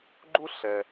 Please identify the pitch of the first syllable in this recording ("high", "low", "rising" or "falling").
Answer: high